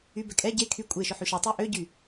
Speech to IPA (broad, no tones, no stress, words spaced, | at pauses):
ybɛ kʼɛ ɟe kʰy kʷʼeʃʊ ħyʃʌtˤe ʔøɟy